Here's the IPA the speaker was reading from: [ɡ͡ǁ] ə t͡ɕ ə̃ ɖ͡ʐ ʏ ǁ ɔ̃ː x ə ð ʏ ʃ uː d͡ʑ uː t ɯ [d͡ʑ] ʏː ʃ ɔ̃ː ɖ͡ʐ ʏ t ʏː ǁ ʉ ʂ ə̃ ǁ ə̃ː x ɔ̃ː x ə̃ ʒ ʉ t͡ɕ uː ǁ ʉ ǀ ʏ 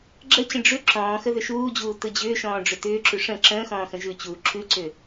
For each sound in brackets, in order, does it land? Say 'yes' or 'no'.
yes, yes

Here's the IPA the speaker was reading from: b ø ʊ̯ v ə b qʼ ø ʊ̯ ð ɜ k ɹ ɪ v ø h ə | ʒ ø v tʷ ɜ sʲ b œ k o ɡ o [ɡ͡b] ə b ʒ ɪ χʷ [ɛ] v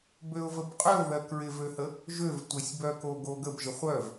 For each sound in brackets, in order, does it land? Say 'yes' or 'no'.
no, no

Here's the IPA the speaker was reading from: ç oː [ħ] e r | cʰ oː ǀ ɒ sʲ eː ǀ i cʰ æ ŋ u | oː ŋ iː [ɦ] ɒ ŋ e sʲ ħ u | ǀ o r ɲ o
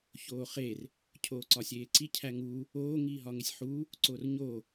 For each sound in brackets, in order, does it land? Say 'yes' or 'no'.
no, yes

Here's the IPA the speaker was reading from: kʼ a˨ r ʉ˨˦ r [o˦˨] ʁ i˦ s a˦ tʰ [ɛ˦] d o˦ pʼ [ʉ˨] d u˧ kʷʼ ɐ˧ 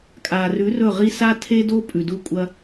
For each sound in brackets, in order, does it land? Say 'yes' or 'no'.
no, no, yes

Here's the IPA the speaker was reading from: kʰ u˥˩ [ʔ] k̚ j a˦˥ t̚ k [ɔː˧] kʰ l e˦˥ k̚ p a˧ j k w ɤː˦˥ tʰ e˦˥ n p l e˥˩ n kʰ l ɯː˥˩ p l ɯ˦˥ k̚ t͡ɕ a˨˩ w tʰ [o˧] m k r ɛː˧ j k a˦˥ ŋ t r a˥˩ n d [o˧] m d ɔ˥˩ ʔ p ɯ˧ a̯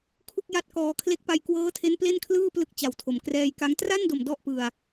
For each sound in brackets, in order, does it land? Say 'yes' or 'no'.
no, yes, no, no

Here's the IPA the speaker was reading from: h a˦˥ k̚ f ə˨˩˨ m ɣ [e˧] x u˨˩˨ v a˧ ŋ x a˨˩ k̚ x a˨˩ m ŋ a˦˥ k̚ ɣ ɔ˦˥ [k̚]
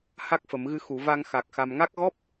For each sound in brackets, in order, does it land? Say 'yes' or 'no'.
no, no

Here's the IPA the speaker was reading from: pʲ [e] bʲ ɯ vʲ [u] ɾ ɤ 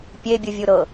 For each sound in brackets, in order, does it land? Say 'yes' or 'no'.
yes, yes

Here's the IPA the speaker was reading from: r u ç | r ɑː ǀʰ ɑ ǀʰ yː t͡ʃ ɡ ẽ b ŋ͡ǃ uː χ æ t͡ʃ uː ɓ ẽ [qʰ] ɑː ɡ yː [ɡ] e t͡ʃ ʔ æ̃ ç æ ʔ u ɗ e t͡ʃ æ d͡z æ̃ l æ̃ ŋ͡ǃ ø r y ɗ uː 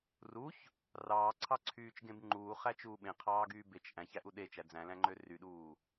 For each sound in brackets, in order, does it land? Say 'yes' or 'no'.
yes, no

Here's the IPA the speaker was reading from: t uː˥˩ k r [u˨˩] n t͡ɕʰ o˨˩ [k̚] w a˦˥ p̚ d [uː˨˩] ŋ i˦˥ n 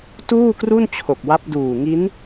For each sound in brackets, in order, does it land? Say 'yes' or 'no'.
no, yes, yes

